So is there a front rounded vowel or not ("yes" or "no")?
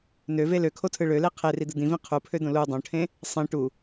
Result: yes